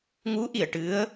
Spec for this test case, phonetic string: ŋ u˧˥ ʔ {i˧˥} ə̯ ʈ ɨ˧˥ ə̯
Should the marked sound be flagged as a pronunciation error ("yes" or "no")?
yes